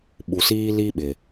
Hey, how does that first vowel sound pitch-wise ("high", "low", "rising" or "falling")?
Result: low